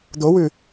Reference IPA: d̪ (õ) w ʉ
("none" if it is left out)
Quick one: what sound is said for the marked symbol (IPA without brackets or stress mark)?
o